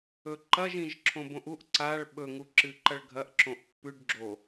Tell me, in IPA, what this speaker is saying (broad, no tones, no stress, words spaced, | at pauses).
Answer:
ɵǃɐʒ ĩʒǁʰõbõʔuʔ ǀaɭ ɓɵ ŋuǁɨǃɐɭɡʱɐʔ ǁõʔpːʉɖ ɡ͡ǁo